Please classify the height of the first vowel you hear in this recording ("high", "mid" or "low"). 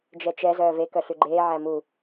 mid